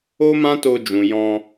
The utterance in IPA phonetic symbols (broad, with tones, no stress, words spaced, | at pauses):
o˦mã˦to˧d͡ʒũ˨ jɔ̃˧